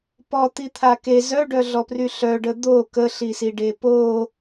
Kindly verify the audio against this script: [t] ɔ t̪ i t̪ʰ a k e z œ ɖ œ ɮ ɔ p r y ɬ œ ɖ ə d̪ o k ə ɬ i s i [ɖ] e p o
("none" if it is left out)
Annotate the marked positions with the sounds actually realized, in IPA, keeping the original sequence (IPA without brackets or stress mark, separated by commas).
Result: p, ɖ